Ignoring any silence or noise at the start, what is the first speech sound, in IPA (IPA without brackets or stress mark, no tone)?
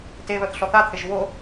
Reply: t